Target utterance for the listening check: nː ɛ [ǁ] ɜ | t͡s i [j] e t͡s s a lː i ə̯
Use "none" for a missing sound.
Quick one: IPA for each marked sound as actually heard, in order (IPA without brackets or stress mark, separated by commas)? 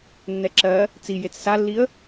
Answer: ǁ, j